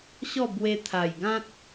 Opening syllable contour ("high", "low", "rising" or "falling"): falling